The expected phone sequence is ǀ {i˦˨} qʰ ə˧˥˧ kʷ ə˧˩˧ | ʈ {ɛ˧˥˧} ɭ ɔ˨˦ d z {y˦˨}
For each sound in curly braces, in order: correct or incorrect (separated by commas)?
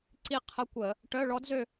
correct, incorrect, incorrect